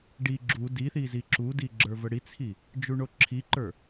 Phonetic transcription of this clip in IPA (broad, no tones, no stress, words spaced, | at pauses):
ɖi ɡ͡ǁu diθi ziǁudi ɡ͡ǁə˞vəɽit͡sʰi | d͡ʒuɳoǁʰiǃə˞